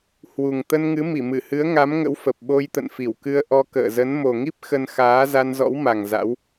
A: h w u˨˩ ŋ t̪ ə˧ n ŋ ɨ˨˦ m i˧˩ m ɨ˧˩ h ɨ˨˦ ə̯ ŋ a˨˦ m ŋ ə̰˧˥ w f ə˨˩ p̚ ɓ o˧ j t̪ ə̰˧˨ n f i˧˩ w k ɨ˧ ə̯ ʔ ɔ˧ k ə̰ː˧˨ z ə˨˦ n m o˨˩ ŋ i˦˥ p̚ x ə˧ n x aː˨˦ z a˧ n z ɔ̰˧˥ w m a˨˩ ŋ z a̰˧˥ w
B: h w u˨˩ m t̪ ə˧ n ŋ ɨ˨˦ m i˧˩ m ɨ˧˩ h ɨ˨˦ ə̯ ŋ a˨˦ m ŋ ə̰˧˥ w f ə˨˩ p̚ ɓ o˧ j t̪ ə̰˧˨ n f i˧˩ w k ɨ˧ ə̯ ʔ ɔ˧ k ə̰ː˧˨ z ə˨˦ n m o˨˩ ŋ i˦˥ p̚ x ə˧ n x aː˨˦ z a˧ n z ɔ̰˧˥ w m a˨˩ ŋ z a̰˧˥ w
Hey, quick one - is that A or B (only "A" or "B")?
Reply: A